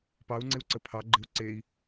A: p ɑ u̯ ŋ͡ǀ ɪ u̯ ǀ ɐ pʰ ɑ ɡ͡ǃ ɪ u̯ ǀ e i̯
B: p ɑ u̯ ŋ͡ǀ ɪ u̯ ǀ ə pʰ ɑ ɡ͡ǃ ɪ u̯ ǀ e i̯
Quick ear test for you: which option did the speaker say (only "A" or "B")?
B